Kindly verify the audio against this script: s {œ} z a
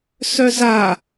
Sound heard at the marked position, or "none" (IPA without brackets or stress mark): œ